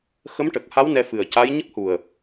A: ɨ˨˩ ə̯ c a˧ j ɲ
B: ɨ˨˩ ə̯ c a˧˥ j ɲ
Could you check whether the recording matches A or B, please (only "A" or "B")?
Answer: B